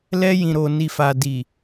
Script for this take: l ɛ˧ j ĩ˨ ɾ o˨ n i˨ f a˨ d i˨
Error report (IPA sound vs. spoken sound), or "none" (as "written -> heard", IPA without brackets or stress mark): none